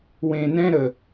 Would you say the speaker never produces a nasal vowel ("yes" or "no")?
no